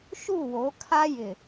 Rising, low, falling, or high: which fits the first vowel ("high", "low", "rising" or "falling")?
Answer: falling